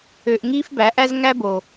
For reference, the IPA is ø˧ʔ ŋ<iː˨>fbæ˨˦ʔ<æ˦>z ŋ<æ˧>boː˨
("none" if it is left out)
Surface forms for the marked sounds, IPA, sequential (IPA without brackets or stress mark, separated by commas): iː˦, æ˦, æ˦